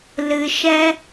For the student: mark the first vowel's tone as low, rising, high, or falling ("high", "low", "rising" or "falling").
low